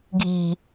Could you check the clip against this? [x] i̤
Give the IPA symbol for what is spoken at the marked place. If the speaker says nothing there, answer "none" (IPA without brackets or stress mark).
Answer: ɡʱ